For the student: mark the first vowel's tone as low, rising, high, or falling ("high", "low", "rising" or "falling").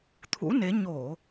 rising